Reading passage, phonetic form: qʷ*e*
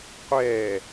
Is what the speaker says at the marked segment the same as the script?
no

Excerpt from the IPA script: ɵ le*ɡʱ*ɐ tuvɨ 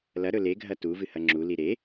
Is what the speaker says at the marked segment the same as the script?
yes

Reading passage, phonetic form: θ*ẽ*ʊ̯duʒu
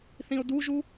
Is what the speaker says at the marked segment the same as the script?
no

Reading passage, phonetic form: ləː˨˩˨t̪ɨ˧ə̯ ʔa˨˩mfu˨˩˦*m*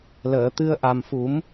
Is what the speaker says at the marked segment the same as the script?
yes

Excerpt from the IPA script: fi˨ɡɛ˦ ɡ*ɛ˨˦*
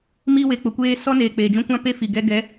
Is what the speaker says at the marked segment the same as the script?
yes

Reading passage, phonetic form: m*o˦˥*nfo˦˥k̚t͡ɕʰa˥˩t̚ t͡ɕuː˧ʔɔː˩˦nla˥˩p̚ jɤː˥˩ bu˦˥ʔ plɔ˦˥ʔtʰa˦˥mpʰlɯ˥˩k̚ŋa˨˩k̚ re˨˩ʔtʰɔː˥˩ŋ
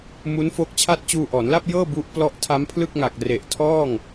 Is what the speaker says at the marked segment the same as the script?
no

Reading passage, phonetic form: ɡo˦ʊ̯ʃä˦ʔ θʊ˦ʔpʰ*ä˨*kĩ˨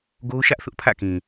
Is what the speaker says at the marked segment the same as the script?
no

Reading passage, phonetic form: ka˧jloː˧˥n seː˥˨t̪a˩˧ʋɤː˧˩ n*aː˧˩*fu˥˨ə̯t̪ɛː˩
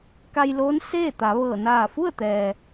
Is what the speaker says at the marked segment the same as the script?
yes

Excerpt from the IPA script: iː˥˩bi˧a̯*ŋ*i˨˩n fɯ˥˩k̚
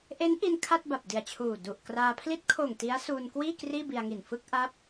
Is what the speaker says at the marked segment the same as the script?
yes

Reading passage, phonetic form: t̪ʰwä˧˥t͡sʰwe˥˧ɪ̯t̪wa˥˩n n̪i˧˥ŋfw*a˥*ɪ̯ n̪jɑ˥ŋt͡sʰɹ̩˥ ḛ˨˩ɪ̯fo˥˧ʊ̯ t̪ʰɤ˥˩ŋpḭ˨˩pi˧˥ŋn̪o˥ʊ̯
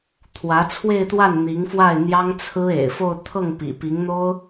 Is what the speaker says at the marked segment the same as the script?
no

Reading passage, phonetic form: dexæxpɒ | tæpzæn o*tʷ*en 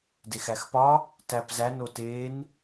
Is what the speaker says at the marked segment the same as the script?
no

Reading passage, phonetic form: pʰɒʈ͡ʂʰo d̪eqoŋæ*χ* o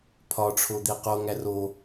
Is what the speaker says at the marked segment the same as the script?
no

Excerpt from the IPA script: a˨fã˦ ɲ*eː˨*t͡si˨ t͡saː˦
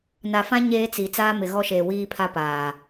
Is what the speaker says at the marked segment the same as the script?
no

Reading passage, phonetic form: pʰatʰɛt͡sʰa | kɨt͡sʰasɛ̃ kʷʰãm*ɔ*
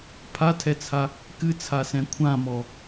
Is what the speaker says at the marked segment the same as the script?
yes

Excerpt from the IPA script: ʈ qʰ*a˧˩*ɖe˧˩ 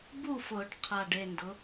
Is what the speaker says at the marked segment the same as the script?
yes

